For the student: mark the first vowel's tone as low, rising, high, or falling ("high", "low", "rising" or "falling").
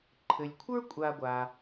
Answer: low